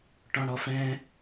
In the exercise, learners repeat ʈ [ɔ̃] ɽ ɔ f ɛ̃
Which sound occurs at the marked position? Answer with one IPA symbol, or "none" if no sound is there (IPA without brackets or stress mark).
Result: ɔ̃